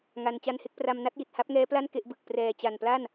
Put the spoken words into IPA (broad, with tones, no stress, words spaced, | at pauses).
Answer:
ŋa˧n t͡ɕa˦˥nhe˦˥k̚pra˧m na˥˩t̚ji˨˩t̚ ha˦˥p̚ŋɛː˦˥pla˥˩n ke˥˩ʔbɯ˨˩k̚ prɛː˨˩t͡ɕa˨˩npla˥˩n